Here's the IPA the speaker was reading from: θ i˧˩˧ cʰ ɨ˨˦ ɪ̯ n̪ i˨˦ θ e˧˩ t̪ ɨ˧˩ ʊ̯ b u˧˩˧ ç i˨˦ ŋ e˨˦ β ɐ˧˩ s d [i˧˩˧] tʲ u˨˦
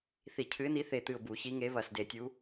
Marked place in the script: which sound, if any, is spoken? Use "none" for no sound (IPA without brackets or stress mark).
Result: e˧˩˧